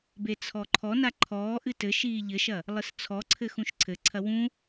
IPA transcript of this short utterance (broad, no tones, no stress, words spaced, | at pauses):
bet͡sʰɔǃʰɔna ǃʰɔːʔɨ tɘ ʃiːʎɘʃɐ | lˠɨst͡sʰɔǀʰɘ xũʃǀʰɘǀʰɐ wũ